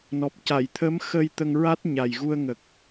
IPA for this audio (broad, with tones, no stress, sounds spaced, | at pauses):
n ɔ˨˩ p̚ c a˨˩˨ j t̪ʰ ə˧˥ m x ə˧ j t̪ ə˧ ŋ ɹ a˦˥ t̚ ɲ a˨˩ j ɣ u˧ ə̯ ŋ ə˨˩ k̚